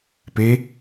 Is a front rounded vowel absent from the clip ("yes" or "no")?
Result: yes